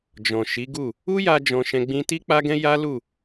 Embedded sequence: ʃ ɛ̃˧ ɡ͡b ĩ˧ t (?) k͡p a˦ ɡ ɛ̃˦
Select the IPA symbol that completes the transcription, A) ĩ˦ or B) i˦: B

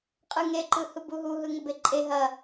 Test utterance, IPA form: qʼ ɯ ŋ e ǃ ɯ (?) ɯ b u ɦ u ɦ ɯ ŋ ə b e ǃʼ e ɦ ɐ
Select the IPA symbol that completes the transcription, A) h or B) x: A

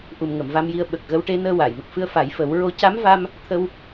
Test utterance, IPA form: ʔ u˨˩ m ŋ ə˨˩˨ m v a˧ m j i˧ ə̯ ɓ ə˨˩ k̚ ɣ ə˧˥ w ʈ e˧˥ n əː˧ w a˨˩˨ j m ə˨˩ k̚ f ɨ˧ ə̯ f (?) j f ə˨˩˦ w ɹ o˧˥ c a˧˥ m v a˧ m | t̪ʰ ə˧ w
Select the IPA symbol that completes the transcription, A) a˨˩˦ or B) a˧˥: A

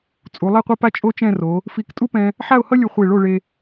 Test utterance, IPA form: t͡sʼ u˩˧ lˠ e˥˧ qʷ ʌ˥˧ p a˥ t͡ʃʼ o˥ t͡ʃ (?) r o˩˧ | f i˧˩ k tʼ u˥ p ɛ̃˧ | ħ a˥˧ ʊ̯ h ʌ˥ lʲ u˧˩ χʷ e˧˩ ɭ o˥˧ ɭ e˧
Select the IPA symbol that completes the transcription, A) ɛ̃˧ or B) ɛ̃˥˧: B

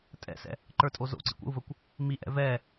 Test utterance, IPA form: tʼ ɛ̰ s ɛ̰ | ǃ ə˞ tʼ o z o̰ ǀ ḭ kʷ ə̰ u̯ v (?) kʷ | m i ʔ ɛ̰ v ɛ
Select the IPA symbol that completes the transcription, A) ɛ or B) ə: B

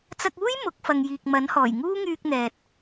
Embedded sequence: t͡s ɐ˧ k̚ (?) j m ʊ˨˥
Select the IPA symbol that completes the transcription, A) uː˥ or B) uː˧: A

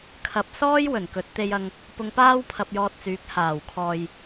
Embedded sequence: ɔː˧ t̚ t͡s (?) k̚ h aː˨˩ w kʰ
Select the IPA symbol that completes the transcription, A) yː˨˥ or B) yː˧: A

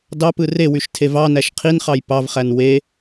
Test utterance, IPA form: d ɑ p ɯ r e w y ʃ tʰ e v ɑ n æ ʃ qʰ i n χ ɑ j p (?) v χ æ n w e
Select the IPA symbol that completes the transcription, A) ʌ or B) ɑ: B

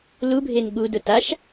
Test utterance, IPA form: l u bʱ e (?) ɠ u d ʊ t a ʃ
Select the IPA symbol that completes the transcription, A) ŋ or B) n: B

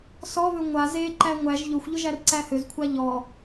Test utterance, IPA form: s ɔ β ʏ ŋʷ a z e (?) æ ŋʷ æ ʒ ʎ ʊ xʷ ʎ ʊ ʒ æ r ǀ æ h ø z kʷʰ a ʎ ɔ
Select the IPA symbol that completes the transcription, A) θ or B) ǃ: B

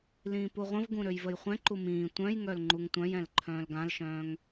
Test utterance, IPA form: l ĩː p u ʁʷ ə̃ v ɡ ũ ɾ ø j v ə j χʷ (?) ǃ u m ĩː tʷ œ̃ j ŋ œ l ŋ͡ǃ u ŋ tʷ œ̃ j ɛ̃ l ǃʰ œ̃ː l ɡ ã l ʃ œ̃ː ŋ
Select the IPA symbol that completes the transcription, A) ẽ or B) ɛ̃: B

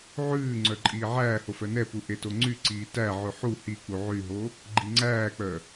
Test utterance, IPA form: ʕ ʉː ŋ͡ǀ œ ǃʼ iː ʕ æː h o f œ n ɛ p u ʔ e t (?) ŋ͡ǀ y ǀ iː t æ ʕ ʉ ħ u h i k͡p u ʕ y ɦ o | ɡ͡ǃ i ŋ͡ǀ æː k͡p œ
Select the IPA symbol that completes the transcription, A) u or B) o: B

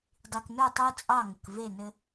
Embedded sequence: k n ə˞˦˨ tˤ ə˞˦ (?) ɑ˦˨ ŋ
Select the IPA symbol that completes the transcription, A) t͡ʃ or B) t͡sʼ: B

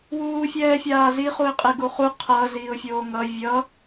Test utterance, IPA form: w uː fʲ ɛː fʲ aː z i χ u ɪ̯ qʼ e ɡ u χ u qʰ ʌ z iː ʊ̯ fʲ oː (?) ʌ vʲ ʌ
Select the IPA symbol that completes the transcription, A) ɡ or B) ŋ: B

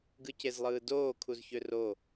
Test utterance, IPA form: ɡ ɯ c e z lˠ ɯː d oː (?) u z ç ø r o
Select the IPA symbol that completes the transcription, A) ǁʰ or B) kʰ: B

